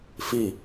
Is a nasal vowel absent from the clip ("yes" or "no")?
yes